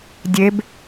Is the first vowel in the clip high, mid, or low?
mid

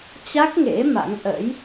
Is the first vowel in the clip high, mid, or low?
low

